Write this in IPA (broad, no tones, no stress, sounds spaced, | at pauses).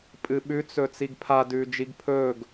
pʼ ɨ ɓ ʉ t͡s ɵː t͡s i ɡ pʰ a d ʉː d͡ʒ i ɡ pʰ ɵː ɡ